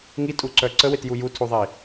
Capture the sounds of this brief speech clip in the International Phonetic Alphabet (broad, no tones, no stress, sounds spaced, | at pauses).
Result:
ŋ i tʼ u ǀ œ ǀ ə w e t j u j u tʰ u ðˤ e i̯